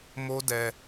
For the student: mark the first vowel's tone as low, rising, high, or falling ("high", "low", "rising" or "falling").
high